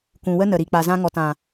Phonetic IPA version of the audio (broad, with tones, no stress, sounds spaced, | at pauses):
kʷ ũ˨ w ə˦ n ə˨ ɾ i˨ k͡p a˨ z ã˧ ŋ ɔ˨ t ã˨